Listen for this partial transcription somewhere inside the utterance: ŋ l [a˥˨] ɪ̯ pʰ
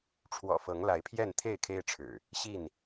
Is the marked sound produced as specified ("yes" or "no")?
no